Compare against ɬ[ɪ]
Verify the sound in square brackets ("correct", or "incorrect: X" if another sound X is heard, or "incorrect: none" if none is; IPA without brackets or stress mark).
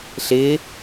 correct